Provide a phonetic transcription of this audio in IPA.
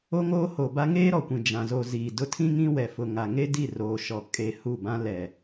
o˦ŋoː˦ho˨ba˦ ŋeː˦ɾɔ˨kʷĩ˨ d͡ʒã˨ zo˨ ziː˨dʊ˦˨ tʰĩ˦ŋĩ˦wɛ˨fʊ˨ ŋa˨ŋe˦di˦˨ roː˨ʃɔ˨ kʼe˨ hu˦˨bã˦ lɛ˨

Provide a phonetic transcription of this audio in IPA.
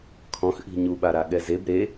kʰɔ̃xʔi̤ ɲuɓaɾa ɠɛzeb ɾe

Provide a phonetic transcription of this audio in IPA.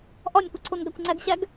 ʔɒnʲkʷi ǀʰonɡækʷŋ͡ǀæɡɕæɡ

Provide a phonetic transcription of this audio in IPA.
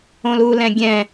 õlulɛ̃ɡʲɛ̃

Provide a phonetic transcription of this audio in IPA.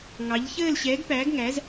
ŋɑ˨˦ʎçəː˥˧l ɕɛː˨˦ɡpæː˨˦ɡŋæ˨˦z

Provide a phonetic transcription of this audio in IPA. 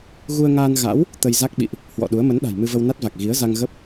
ɣu˧ə̯ŋaː˧n ɣa̰˧˥w | t̪ə˧jza˦˥k̚ɓḭ˧˨ʔ | hwɔ̰˧˨ɗu˨˦ə̯ mə˨˦nɗa̤˨˩j mɨ˧və˧wna˦˥t̚va˨˩k̚ ɣi˨˦ə̯za˧ŋ ɣə˦˥p̚

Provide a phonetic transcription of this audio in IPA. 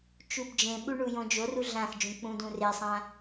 t͡ʃubd͡ʒẽɓu ɳujõd͡ʒoru ɮãxd͡ʒũ k͡pũdũresˤã

